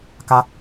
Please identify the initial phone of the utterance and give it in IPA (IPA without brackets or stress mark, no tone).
k